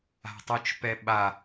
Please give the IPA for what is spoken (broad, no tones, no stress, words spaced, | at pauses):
a̤tˤut͡ʃpɛɓa